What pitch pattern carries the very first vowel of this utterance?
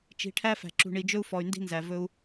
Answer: rising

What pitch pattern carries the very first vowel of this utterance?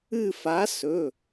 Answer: falling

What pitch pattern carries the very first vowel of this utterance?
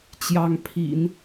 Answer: rising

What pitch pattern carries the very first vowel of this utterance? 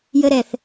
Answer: high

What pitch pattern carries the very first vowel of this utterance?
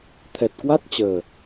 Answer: low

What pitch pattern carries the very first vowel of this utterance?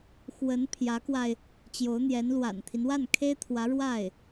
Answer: rising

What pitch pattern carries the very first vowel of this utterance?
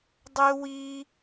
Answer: high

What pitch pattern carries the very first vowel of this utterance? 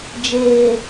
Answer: low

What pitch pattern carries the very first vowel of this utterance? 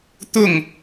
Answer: falling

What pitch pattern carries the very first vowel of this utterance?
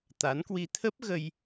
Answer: rising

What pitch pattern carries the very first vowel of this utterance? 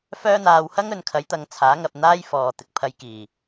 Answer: high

